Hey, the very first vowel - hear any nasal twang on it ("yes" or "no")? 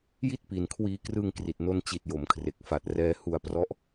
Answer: no